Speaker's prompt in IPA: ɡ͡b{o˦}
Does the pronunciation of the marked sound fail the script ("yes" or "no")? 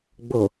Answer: yes